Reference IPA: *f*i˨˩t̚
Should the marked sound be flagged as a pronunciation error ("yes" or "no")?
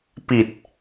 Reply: yes